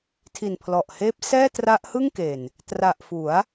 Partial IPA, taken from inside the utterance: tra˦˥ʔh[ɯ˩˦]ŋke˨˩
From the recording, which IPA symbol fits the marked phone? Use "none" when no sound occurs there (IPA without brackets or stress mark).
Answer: ɯ˥˩